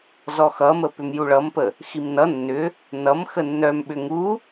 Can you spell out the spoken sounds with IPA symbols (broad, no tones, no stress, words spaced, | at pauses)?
zɔxʌmə pʏmjuɭʌmpə | ximnʌ nːʏ | nʌm xənːœm ɓʏŋu